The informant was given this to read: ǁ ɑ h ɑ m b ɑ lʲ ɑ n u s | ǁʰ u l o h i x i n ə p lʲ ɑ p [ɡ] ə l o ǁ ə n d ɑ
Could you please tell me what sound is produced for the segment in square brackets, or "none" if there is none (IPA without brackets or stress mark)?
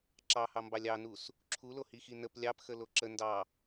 x